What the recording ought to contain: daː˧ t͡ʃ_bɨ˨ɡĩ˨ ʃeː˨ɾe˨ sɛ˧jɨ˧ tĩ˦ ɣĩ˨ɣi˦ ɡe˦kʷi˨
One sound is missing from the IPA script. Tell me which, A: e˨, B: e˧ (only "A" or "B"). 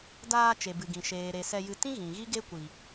A